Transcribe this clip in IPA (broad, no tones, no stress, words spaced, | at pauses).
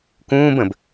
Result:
kũːb ə̃b